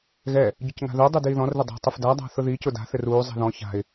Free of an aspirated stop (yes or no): yes